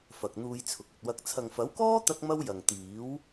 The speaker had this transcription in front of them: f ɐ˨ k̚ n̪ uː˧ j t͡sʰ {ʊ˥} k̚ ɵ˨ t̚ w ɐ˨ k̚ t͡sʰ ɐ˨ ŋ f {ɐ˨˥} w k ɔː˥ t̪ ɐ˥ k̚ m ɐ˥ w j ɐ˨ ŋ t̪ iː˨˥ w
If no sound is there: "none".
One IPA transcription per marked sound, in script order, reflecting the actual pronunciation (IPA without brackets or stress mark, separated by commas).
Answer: ʊ˨, ɐ˨˥